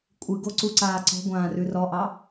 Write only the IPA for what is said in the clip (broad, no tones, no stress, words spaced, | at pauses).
kʷʼɨɡo ǀuǀaːǀɔ̤ɡʷãː rʉrɔʔɑ